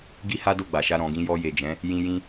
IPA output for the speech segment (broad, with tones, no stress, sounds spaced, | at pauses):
ɡ i˦ h a˦ d o˦˨ ɡ͡b a˨ ʃ a˧ ɾ ɔ̃˨ ɡ ĩ˧ j ɔ˧ j e˨ d͡ʒ ɛ̃˨˦ | j ĩ˧ j ĩ˧